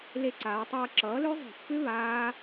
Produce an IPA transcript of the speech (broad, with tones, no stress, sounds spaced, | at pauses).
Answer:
l e˧ ǀ aː˩˧ tˤ ʌː˧ ǁ ʌː˩˥ l ø˦˥ zˤ e̤˧˩˧ pː ʏ˦˥ β aː˦˥